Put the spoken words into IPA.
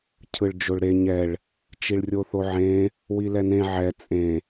cʰ ɯ ɭ d͡ʒ o ɭ ɾ e ɲ ɛ ɭ | t͡ʃ i ɭ rʲ o θ o ʕ ẽ | w i l ɛ n ẽ ʕ ɛ t͡sʼ ẽ

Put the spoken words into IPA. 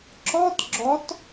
ǁ ɔ t ɡ͡ǁ ɔ t

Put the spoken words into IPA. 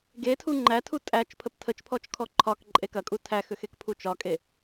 ɡ e tʰ u ŋ͡ǃ æ tʰ u tʼ æ t͡ʃ pʰ ə p tʰ ə t͡ʃ pʰ ɔ t͡ʃ kʰ ɔ ǃʰ ɒ k ǃʼ e k ɐ kʼ u tʰ æ x ʏ x e k pʰ u t͡ʃ ɒ kʼ e

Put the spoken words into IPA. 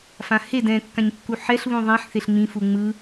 f ã h e d ɛ̃ kː ã ɲ kː u ħ ɛ ɬ β ũ ðˤ ẽ ħ θ e ɬ ŋ͡m ĩ f u ŋ͡m ɯ

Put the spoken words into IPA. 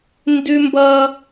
n d ʉ˦ m b ʌ˦

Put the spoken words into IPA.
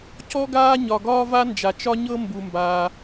c ɔ˥ ɡ aː˥ ɲ ɒ˩ ɡ ɒː˥ v a˥ n d͡ʒ a˩ t͡ʃ ɒ˥ ɲ ɤ˥ m b u˩ m b aː˩

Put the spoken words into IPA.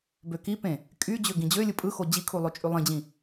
b ø k i p ẽ | kʼ y d͡ʑ ø ɡ ĩ d͡ʑ ø lʲ ɯ pʼ ɯ x o d͡ʑ i kʰ u lˠ o t͡ʃʼ y lˠ ĩ d͡ʑ ĩ

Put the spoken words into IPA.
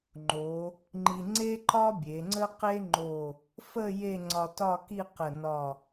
ŋ͡ǃ o˩˧ | ŋ͡ǃ i˧ ŋ͡ǀ e˥ ǃ ɒ˥ bʲ e˩˧ ŋ͡ǀ ə˥ q e˥ ŋ͡ǃ o˧˩ | f ə˥˧ j e˥˧ ŋ͡ǀ ɒ˧ t ɒ˥˧ k i˥˧ q ə˧˩ n ɒ˧˩

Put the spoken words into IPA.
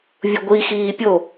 vʲ u ɡʷ i x iː pʲ o

